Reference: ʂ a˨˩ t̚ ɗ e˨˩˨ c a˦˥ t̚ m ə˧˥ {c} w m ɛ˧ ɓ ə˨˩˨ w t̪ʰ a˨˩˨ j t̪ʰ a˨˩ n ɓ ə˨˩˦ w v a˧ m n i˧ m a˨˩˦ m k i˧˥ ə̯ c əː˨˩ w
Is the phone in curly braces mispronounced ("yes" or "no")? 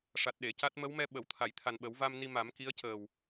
yes